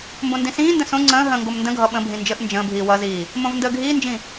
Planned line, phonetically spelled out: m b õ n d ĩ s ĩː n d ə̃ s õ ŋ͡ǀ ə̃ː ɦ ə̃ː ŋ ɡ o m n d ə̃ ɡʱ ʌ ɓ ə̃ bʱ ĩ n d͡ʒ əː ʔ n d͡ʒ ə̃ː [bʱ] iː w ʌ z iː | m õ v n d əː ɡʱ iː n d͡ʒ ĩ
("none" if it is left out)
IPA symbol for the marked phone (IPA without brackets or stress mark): bʱ